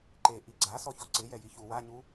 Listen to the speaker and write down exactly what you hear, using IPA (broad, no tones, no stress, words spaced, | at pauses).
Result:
ǃe ʔiɡ͡ǀa sɔçɔǀɪjɛ jiçu waɲu